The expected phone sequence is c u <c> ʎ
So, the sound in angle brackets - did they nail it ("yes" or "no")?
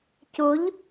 no